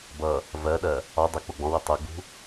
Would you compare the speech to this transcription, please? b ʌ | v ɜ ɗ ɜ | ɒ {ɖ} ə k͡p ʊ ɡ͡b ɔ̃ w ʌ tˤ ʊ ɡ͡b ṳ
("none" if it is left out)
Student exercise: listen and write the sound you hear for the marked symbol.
dˤ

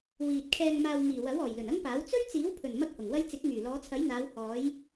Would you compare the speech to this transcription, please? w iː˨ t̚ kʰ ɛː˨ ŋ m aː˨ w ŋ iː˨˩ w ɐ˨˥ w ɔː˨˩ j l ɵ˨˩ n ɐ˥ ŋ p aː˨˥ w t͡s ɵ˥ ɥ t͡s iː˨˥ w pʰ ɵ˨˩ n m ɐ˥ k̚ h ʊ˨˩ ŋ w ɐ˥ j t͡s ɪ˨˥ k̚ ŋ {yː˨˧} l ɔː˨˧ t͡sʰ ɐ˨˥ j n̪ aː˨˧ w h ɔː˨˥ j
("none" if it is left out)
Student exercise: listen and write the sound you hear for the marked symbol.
yː˨˩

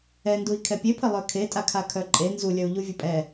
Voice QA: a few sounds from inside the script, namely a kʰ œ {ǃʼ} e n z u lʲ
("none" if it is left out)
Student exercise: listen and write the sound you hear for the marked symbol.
ǃʼ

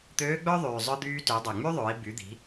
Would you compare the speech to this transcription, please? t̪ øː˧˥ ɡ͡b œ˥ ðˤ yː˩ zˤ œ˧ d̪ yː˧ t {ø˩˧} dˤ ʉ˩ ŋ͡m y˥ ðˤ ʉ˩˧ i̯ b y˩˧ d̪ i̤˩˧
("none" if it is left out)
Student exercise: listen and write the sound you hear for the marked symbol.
ø˩˧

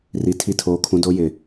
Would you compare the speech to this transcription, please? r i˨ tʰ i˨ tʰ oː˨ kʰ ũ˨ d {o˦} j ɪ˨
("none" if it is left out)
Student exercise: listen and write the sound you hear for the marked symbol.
o˨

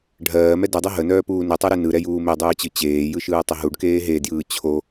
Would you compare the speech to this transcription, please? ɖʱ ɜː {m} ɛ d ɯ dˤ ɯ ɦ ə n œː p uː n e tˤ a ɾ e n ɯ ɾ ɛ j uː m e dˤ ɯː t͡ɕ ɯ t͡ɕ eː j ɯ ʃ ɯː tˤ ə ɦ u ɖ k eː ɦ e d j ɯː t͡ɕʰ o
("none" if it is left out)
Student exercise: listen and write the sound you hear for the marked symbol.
m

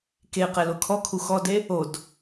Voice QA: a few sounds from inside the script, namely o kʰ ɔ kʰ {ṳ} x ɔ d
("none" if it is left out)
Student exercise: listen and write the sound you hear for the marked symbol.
u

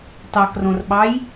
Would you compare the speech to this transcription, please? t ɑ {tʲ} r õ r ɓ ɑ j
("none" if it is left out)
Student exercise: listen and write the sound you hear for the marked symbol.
k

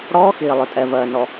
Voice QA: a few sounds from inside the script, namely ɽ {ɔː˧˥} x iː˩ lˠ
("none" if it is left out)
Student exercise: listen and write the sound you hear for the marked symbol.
ɔː˧˥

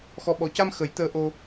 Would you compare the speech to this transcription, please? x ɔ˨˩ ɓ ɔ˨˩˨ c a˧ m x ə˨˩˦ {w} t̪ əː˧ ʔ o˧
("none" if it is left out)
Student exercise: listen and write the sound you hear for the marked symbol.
j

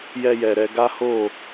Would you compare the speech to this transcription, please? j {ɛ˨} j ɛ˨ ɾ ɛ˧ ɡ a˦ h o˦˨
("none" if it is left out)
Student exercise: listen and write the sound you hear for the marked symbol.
ɛ˧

